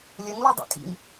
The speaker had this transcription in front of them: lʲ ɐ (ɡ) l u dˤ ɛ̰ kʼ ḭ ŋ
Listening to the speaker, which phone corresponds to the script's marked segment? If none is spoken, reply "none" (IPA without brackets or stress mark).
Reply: ŋ